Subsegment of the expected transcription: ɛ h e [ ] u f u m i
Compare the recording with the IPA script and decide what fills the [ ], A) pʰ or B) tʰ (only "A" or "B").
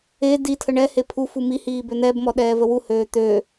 A